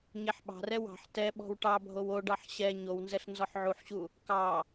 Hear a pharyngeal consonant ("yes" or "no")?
yes